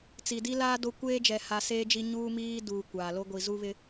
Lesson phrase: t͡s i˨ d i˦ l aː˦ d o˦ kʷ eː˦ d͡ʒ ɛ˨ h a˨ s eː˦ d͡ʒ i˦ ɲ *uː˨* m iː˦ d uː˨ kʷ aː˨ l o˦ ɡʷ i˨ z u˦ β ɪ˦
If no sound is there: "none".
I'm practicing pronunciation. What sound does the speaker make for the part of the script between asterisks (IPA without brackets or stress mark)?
uː˦